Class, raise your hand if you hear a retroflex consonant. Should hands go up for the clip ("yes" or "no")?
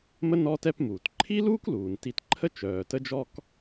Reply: no